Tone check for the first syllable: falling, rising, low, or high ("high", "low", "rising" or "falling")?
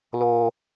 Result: high